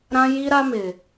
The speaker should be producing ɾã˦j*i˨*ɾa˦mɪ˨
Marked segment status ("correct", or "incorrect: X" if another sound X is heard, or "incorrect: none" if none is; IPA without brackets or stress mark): incorrect: i˦